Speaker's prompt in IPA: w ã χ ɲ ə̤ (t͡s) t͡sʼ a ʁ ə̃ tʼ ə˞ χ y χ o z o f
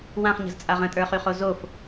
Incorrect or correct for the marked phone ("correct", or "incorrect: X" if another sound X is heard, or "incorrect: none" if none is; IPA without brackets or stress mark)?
incorrect: z